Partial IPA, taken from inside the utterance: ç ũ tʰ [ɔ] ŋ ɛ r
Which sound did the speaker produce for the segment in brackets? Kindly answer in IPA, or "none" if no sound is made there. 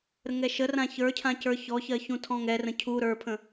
ɔ̃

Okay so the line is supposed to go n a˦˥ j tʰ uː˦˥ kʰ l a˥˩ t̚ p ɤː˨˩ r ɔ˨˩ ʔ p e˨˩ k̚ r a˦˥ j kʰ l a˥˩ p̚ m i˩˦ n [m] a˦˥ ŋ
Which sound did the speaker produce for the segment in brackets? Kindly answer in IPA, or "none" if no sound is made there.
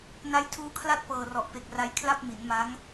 m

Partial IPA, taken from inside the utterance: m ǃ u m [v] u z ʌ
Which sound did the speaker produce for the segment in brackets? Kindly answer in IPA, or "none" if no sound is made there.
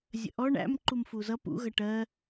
f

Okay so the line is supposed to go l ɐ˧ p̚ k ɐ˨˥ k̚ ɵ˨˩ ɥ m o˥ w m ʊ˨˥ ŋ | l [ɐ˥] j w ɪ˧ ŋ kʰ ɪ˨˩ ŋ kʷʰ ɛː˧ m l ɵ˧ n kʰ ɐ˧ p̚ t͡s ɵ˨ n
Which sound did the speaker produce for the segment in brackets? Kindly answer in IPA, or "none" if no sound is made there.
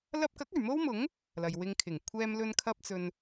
ɐ˨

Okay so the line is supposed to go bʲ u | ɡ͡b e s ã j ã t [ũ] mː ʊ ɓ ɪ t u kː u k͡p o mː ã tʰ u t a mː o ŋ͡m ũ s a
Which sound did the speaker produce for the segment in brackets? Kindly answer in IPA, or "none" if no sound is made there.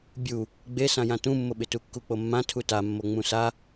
ũ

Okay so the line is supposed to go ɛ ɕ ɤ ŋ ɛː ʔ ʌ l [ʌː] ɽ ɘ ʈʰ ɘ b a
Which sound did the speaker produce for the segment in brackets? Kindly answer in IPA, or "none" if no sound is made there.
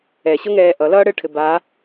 ʌː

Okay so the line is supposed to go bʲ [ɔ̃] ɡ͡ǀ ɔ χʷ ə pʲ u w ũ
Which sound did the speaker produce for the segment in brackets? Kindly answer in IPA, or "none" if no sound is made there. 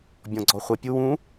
ɔ̃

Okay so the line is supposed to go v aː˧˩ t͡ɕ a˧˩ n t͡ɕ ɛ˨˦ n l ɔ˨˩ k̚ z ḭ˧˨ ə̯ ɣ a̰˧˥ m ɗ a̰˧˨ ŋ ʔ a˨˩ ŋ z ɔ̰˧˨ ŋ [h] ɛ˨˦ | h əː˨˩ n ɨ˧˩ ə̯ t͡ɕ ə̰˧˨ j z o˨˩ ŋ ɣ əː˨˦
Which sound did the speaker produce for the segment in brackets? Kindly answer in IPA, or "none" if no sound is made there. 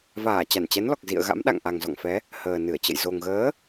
f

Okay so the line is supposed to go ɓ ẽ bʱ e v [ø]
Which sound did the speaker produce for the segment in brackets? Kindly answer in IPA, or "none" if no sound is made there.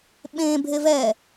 ɛ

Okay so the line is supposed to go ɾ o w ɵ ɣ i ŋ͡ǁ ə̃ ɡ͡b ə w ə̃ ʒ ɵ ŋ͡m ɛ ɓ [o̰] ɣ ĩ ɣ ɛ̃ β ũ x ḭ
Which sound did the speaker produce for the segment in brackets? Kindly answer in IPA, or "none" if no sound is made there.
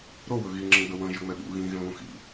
ṵ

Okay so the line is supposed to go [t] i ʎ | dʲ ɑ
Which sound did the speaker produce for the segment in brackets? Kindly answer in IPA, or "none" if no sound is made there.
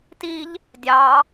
t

